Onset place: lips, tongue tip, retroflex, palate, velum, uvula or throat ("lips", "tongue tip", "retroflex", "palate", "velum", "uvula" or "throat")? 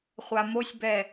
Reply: uvula